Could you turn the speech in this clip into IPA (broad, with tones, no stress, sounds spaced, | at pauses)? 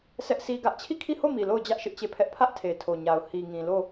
s ɛ˦ ʔ sʰ i˦ ɡ ä˦ ʔ t͡ɕʰ i˦˨ kʰ i˦˨ h o˦˨ m i˨ l o˦˨ ʊ̯ d͡ʑ ä˦ ʔ ʃ ɪ˦ ʔ t͡ɕ e˦˨ pʰ ɛ˦ ʔ pʰ ä˦ ʔ tʰ e˨ tʰ o˨ ɲ a˨ ʊ̯ h i˨ ŋ ĩ˨ l o˦˨